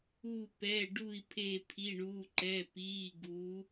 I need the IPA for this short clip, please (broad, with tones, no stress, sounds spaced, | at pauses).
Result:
uː˧˩ p ɛː˩˧˩ ɖ u˧˩ i̯ pʰ e˧˩ pʰ i˩˧˩ ɳ uː˩˧˩ ǃ ɛː˩˧˩ p iː˩˧˩ ɡ u˩˧